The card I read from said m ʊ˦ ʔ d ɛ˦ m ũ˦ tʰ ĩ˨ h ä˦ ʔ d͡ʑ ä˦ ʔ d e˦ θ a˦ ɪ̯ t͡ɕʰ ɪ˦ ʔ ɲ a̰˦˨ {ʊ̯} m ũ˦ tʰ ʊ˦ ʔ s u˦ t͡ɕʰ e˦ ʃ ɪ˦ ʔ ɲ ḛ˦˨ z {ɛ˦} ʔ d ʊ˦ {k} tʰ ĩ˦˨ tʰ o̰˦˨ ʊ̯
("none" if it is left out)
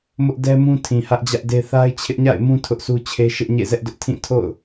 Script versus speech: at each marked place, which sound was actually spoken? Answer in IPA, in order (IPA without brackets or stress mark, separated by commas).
ɪ̯, ɛ˦, ʔ